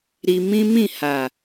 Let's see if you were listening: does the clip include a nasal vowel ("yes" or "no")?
yes